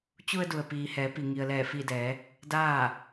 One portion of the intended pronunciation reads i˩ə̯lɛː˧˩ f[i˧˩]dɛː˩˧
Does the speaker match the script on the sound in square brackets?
yes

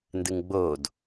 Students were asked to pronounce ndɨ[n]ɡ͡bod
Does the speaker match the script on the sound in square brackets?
no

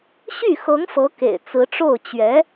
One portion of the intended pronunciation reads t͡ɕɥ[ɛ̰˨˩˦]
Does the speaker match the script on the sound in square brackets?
no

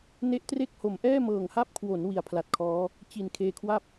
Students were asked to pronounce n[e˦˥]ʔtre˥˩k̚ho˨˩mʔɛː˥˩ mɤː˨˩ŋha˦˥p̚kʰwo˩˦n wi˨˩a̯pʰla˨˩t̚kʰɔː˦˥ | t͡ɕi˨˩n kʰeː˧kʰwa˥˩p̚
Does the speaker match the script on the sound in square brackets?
yes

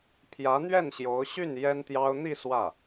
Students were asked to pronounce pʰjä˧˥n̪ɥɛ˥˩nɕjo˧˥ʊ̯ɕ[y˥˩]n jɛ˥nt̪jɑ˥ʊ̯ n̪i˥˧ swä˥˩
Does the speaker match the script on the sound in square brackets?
yes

